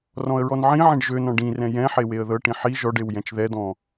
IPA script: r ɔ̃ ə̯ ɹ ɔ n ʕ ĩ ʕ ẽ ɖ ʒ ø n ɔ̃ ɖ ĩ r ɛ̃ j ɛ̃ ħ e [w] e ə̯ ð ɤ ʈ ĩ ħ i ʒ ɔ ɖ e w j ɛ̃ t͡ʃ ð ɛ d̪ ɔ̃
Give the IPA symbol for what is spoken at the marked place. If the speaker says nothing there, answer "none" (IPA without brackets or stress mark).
w